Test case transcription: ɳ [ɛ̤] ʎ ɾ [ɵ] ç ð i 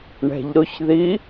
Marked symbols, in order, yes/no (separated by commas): yes, no